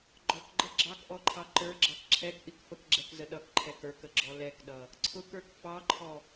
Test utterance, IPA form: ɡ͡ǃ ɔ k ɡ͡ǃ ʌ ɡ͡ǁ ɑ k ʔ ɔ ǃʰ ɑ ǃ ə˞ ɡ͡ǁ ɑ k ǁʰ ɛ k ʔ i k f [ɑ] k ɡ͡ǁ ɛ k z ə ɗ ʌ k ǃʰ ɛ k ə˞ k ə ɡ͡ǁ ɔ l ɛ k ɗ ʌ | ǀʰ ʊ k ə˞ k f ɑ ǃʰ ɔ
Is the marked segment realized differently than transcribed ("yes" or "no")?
yes